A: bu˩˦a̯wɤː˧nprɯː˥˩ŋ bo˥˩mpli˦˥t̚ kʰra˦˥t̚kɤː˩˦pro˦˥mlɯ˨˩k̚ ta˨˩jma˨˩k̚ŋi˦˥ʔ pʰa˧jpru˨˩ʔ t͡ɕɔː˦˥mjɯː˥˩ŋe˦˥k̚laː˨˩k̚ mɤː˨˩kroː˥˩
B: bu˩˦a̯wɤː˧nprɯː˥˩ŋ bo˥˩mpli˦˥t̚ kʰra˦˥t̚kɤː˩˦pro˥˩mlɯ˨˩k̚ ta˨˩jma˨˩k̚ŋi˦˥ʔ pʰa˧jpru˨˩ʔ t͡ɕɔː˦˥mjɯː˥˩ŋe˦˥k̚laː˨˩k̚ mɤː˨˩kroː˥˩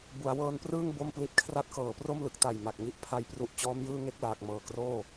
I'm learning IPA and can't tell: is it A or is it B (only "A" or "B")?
B